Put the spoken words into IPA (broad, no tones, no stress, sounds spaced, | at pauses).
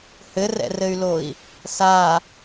h ɘ r ɛ̰ r ɘ y̯ l o i̯ | s a